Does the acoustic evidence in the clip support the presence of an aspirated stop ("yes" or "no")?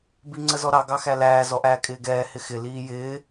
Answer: no